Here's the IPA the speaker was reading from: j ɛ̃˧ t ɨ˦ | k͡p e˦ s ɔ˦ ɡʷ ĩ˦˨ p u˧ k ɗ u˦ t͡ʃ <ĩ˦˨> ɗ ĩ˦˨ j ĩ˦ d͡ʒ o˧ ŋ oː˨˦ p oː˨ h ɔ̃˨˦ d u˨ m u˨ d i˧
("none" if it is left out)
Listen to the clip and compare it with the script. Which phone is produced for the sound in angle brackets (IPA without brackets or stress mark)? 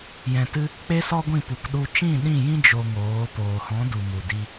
ĩ˦˨